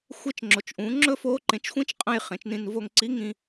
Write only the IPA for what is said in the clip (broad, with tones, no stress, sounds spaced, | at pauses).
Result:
xʷ e˧ t͡ʃ ŋ͡ǁ o˩ t͡ʃ ʔ ũ˩˧ ŋ͡ǁ ɵ˥ f o˧˥ ǃ ẽ˩˧ t͡ʃ xʷ ĩ˧˥ t͡ʃ qʼ ɐ̃˧ j χ ẽ˩˧ t͡ʃ n ĩ˧ n v o˧ ŋ ǀ i˧˥ ŋ ĩ˧